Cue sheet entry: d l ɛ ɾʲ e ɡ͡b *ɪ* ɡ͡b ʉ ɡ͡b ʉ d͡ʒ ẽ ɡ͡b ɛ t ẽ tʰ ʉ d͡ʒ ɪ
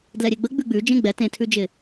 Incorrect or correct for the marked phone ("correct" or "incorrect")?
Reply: incorrect